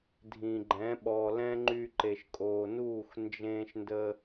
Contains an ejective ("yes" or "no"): yes